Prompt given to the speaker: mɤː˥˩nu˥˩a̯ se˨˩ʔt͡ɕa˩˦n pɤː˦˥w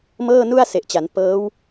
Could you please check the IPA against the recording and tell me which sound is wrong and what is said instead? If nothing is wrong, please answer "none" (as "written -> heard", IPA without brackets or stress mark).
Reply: none